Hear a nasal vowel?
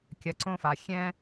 yes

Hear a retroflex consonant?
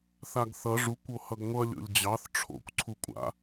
yes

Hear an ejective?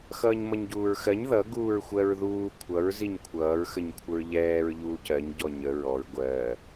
no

